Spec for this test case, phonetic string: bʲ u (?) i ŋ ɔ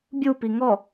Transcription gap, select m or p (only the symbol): p